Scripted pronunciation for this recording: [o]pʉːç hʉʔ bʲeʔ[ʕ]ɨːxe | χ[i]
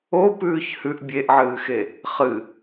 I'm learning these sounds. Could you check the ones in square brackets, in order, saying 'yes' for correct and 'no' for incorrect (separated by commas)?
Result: yes, yes, no